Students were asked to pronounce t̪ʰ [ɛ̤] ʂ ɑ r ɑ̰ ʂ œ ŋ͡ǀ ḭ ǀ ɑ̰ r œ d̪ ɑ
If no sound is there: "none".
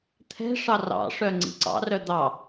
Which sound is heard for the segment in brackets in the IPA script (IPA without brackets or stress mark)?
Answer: ɛ̤